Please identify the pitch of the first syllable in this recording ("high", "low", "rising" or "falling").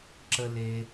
low